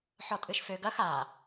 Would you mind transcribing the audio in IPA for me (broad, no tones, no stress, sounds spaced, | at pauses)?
ħ ɔ tʼ ɨ ʃ f ø ɡ ɐ x a